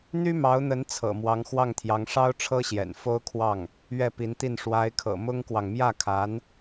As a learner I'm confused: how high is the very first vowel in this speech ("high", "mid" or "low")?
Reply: high